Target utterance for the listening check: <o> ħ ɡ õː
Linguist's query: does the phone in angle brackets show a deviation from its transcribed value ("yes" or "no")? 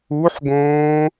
yes